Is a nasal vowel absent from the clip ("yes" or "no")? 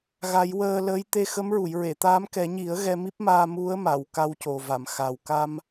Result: yes